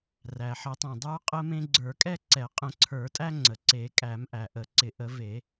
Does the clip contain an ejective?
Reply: yes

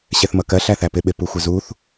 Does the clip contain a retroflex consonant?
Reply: no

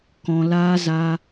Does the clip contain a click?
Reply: no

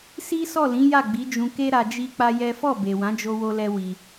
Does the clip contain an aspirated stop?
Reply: no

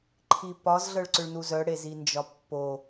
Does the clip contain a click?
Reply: yes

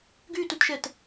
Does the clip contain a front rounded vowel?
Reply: yes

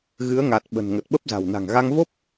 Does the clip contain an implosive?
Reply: yes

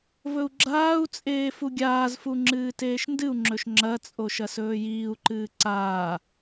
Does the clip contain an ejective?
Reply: yes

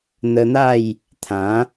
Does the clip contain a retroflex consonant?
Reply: no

